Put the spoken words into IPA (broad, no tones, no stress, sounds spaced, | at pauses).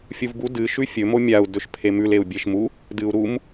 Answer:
fʲ u v b u d ɨ ʃ ʉ fʲ ɵ m o mʲ a u̯ d ɵ ʃ pʰ e m ʉ l e u̯ bʲ e ʃ m u | d ɨ u̯ ɾ u m